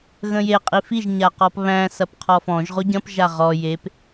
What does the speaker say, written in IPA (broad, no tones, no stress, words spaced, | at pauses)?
ɣə̃je qʼifiʒ ɲaqɔpβæ̃ sɐpqʰɔfɔ̃ʒ ʁoɟɐ̃p ʒaʁɔ jep